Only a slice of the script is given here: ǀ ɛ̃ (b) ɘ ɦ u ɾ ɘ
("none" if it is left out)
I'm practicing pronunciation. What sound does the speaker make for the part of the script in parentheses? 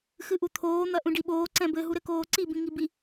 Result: b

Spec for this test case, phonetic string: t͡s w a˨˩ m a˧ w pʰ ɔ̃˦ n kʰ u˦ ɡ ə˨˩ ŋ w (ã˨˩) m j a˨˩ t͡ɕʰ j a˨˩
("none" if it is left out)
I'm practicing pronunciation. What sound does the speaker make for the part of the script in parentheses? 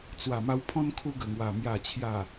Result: a˨˩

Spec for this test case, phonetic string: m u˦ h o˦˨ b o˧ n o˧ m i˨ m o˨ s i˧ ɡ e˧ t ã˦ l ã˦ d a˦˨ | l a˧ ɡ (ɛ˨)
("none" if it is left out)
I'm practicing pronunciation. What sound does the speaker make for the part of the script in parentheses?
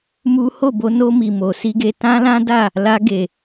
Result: e˨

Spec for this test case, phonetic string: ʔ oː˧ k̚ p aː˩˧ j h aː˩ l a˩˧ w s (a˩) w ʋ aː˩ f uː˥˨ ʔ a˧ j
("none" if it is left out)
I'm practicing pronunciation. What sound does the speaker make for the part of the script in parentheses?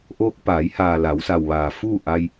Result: a˩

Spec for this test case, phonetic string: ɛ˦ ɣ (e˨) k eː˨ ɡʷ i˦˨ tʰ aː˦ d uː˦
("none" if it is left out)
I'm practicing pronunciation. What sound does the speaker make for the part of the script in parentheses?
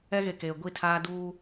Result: e˨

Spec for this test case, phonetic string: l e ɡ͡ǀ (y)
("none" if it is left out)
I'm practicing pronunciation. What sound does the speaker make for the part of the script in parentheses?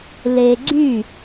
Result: y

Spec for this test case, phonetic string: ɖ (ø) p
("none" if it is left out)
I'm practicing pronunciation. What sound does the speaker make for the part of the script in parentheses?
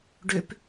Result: ø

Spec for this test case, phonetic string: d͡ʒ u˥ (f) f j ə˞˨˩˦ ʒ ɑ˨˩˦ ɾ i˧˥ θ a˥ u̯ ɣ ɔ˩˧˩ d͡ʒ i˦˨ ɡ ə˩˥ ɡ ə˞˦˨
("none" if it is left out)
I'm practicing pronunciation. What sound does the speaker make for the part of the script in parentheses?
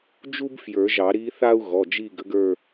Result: b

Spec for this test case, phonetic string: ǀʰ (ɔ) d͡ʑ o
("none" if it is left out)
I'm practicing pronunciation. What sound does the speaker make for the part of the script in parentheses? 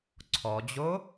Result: ɔ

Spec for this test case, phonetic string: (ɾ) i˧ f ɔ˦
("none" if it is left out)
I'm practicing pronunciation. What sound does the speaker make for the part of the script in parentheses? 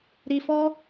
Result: ɾ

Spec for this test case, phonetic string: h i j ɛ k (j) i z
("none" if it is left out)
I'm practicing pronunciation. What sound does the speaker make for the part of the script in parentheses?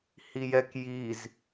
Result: j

